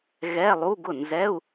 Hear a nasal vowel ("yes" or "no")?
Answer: no